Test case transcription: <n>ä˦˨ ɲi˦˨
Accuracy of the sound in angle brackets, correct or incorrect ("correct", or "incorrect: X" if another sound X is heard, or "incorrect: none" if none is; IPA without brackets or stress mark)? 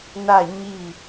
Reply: correct